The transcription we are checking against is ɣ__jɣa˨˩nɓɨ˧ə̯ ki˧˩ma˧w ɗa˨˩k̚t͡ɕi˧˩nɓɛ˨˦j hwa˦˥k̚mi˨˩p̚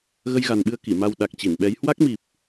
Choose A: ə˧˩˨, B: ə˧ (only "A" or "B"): B